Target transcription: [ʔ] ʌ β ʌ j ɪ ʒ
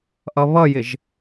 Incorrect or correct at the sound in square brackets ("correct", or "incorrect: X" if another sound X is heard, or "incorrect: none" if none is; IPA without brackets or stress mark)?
correct